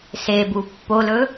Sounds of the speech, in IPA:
s e b u pː o l ɵ

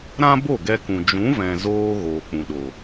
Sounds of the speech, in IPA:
ɾ ã˦ b o˦˨ ɡ ɛ˧ k ũ˨ d͡ʒ ũ˨˦ v ɛ̃˨ z oː˧ ɣ oː˨ k͡p ũ˨ ɗ o˨

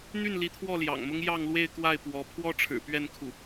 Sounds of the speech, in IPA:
n̪ y˥˩ n l i˧˥ t̪ʰ w ɔ˥˩ l j ɑ̰˨˩ ŋ m ʊ˥ ŋ j ɑ˥˧ ŋ l w e˥˧ ɪ̯ k w a˥˩ ɪ̯ p w ɔ˧˥ pʰ w ɔ˥ ʈ͡ʂʰ ɻ̩˨˩ p ɥ ɛ˥˧ n kʰ u˥˩

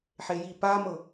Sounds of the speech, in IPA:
ħ e j i p a m ɤ

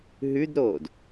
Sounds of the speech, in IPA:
ɦ ʉ d ɾ oː d

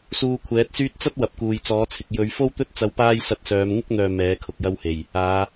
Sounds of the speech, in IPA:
s uː˧ kʷʰ ɛː˨˥ t̚ s yː˥ t̚ t͡s ɐ˥ t̚ w ɐ˨ p̚ k uː˨ j t͡s ɔː˨˥ t͡sʰ ɪ˨ k̚ j ɵ˨˧ ɥ f o˥ w t̪ ɵ˥ t̚ t͡s ɐ˧ w p aː˥ j s ɐ˧ t̚ s œː˨˧ m ŋ ɪ˥ k̚ n̪ œː˨ m ɛː˨˥ kʰ ʊ˨ k̚ j ɐ˥ w h e˨˩ j | aː˨˧

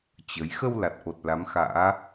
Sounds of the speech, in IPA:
t͡ɕ ə˨˦ j x ə˧ w l a˨˩ t̚ ʔ o˨˩ t̚ l a˨˦ m x a̰ː˧˥

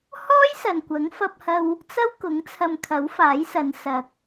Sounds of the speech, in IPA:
h ɔː˥ j s ɐ˨ n kʷ ɐ˨˥ ŋ f ɐ˧ p̚ h ɐ˧ w | t͡s ɐ˥ w k ʊ˨˥ ŋ t͡sʰ ɐ˧ m kʰ ɐ˨˥ w f aː˨˥ j s ɐ˨˧ n s ɐ˨ k̚

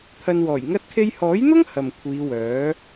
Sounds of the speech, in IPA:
t̪ʰ ɐ˧ n w ɔː˨˩ j ŋ ɐ˥ t̚ kʰ e˥ j h ɔː˨˥ j n̪ ʊ˥ ŋ h ɐ˨ m kʷʰ iː˨˧ w œː˨˥

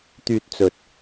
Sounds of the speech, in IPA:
t̪ yː˧ t̚ t͡s ɵ˨ t̚

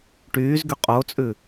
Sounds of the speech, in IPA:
ʈ yː z ɡ y qʼ o t͡sʼ ʉ

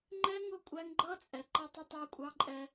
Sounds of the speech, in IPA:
ŋ͡ǃ ɛ˦ ŋ ʊ˦˨ kʷʼ æ˦ ŋ ɡ͡ǃ ʌ˦ t͡sʼ ɛ˨ ǃ ʌ˦ tˤ ɪ˦ tˤ æ˦ kʷʼ ɑ˦ ǃʼ ɛ˦

